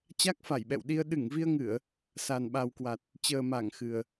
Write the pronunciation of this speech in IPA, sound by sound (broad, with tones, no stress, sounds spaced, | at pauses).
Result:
t͡ɕ a˦˥ k̚ f a˧˩ j ɓ ɛ̰˧˨ w ɗ i˧ ə̯ ɗ ɨ˧˩ ŋ v i˧ ə̯ ŋ ɨ˧˩˨ ə̯ | s a˨˩ n ɓ a˨˩ w k w a˨˩ t̚ | t͡ɕ əː˨˩ m a˧˩ ŋ x ɨ˨˩ ə̯